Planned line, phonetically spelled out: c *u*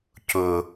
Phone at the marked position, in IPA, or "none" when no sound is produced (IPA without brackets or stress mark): ʊ